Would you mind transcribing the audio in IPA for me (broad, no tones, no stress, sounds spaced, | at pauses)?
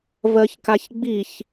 v ɜ ç k a ç ɡ͡b i ç